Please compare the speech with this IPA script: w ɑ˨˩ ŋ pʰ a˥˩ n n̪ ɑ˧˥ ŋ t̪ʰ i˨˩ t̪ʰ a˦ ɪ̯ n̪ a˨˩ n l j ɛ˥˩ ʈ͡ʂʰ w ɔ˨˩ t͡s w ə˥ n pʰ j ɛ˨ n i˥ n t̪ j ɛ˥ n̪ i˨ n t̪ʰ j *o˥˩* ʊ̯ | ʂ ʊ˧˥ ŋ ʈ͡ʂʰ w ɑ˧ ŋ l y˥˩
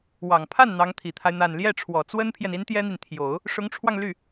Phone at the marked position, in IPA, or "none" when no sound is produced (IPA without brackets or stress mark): o˨˩˦